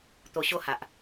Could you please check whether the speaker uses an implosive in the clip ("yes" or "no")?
no